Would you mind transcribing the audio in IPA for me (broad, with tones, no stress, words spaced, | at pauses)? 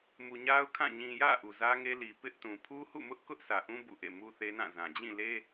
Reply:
mu˨ɲa˦ʊ̯kʰã˦˨ ɲĩ˨jä̰˦˨ ʔu˨zä˦ŋe˦li˨ pɪ˦ʔtũ˨ pʰu˦hṵ˦˨ mʊ˦ʔkʊ˦ʔ sʰä˨ʔũ˦ bṵ˦˨ʔḛ˦˨ mu˦θe˦ nã˦˨zã˨ d͡ʑĩ˦˨le˦